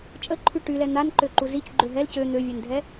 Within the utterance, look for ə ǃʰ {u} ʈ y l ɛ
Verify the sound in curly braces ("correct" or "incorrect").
incorrect